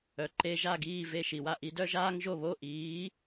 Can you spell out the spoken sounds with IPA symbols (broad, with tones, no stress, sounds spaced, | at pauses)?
œ˩ ǃ e˧ ʒ a˥˩ ɡ iː˥˩ v e˥˩ ʃ i˩ w a˥˩ ʔ i˧ d œ˥ ʒ aː˥ ŋ ʒ o˥˩ β o˥˩ ʔ iː˩˥